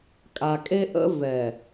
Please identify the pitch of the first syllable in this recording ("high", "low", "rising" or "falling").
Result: low